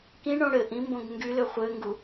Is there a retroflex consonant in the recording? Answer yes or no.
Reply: yes